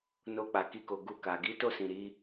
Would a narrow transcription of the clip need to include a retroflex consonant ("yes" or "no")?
no